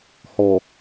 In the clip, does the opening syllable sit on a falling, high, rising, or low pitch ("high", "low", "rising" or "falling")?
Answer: low